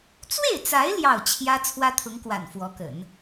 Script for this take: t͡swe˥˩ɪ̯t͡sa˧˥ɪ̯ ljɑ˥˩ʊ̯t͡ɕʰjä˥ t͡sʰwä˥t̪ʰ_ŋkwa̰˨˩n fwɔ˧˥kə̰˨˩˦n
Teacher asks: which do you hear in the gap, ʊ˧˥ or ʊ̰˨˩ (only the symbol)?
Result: ʊ˧˥